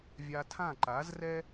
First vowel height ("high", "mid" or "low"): low